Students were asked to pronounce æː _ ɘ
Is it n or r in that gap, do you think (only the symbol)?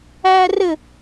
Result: r